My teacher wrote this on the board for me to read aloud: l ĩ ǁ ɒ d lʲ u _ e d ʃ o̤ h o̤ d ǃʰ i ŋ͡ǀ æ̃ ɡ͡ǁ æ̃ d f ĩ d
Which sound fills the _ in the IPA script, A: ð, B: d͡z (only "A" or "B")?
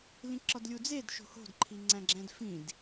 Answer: B